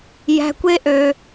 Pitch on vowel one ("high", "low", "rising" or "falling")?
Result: high